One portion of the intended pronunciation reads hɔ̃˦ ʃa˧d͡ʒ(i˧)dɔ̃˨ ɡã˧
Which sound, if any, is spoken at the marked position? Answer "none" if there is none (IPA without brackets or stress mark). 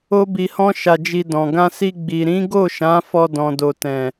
i˧